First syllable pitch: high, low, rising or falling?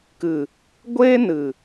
low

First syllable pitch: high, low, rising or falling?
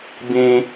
high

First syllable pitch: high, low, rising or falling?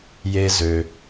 high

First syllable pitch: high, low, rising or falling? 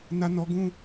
high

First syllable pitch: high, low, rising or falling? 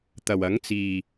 low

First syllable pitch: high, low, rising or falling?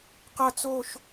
falling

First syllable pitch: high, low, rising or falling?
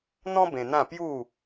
high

